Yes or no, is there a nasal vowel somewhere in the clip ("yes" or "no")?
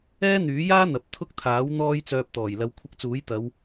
no